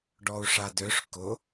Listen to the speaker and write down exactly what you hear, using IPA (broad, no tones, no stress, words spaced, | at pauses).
ɖɔu̯ʂadøʂ kʊ